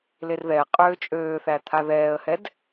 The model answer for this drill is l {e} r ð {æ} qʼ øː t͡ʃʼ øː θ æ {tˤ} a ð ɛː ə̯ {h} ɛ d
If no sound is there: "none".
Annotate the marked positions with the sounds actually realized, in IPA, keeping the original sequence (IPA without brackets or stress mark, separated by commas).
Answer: e, ɛ, t̪ʰ, h